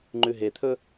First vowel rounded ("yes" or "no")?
yes